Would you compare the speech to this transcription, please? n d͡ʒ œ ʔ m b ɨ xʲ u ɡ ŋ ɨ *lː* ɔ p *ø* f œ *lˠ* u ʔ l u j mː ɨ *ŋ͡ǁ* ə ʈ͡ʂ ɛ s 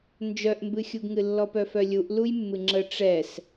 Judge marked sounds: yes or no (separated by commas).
yes, no, no, yes